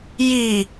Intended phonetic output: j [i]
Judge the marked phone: correct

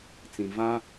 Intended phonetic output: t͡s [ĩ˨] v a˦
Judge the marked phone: correct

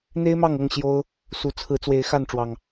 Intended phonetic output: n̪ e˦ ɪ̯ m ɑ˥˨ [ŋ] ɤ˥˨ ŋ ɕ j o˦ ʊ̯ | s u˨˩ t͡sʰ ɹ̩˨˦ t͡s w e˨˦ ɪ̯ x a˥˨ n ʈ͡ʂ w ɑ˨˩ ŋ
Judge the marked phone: correct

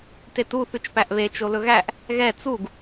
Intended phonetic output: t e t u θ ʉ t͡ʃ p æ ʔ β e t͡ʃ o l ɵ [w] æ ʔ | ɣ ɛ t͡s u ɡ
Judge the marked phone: incorrect: ɣ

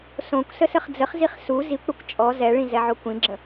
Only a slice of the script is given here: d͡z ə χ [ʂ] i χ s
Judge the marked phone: incorrect: z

